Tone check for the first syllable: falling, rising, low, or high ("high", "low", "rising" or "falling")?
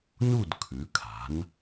falling